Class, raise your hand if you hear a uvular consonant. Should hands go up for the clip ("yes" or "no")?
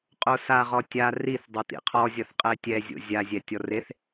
yes